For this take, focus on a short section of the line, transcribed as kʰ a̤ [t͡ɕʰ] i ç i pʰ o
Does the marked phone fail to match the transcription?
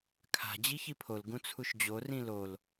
yes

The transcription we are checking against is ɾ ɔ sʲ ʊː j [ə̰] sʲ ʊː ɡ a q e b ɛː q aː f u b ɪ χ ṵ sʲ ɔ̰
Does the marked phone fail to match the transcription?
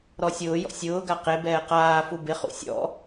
yes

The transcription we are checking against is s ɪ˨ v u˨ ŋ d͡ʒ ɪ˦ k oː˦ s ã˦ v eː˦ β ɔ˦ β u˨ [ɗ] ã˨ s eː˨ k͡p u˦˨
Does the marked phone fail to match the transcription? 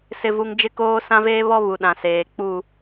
no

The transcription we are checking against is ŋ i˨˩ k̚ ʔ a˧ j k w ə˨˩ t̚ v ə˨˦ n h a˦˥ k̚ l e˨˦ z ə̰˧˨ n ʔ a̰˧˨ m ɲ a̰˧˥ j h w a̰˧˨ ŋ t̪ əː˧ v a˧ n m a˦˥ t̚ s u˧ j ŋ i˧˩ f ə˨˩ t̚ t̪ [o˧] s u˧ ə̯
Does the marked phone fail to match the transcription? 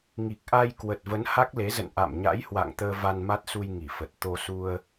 no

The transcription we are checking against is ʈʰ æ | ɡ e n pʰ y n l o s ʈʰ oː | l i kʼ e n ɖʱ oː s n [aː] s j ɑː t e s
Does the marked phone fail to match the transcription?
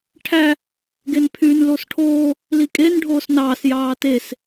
yes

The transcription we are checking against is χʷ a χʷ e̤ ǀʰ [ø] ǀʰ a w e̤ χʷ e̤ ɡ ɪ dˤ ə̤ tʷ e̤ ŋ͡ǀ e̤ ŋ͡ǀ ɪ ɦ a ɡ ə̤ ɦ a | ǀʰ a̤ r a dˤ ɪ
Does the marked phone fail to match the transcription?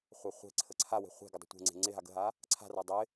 yes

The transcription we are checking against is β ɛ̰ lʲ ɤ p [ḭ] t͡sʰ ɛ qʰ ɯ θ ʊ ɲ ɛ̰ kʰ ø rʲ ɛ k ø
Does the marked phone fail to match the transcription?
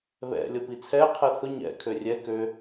yes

